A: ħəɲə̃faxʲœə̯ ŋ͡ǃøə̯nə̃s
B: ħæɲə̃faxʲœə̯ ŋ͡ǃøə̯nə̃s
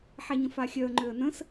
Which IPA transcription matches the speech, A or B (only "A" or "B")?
B